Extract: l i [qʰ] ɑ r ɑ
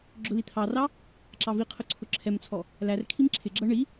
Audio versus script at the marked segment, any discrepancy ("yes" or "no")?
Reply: yes